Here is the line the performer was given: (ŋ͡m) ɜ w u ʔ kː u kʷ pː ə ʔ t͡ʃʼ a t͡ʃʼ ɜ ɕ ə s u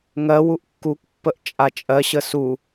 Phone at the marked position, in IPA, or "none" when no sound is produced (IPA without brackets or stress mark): ŋ